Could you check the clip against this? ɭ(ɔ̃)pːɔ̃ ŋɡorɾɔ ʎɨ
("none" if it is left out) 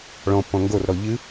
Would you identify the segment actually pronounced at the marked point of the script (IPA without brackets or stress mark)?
ɔ̃